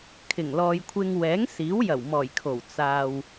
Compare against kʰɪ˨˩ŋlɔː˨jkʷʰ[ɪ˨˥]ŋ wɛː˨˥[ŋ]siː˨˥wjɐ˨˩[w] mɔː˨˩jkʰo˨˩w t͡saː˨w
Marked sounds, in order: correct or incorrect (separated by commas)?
incorrect, correct, correct